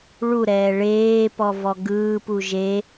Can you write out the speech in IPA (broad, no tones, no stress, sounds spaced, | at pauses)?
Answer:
ɭ u ɾ ɛː ɭ eː p ɔ v ɔ ɡ ɯː p u ʒ e